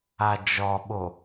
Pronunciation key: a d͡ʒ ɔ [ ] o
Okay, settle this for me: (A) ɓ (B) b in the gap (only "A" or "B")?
A